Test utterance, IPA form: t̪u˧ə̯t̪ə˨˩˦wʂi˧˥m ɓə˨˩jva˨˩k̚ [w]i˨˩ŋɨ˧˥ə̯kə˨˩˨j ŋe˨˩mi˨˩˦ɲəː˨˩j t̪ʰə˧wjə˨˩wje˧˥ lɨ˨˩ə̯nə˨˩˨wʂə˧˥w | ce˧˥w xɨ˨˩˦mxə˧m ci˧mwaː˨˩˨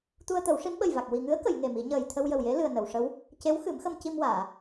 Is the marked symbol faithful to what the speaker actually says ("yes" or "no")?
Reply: yes